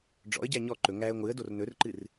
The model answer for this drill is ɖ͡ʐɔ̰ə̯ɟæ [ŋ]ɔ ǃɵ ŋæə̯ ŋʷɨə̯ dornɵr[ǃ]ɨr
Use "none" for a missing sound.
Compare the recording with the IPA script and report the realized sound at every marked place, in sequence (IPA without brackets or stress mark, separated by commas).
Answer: ɲ, ǃ